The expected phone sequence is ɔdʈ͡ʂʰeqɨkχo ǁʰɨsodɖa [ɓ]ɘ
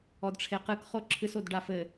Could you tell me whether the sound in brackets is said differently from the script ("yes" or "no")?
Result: yes